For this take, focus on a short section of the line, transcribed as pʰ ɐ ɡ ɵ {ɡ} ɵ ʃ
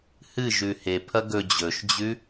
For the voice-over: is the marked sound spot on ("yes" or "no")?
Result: no